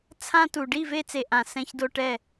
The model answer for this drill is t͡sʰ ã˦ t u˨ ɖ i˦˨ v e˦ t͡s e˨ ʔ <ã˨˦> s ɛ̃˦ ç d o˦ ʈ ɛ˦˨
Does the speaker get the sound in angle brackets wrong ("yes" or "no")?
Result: yes